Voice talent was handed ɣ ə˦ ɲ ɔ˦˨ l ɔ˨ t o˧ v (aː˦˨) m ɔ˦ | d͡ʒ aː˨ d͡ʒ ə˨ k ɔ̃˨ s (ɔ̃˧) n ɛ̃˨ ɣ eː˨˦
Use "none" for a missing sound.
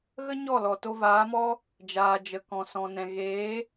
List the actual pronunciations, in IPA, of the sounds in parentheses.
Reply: aː˨˦, ɔ̃˨

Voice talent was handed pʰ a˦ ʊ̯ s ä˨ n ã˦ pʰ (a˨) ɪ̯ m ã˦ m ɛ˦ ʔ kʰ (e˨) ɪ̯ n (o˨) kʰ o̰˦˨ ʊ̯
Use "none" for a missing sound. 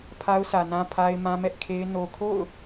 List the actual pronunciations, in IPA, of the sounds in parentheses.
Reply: a˦, e˦, o˨

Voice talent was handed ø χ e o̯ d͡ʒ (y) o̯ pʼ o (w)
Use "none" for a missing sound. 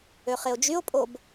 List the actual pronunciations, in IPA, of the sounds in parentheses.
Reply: y, b

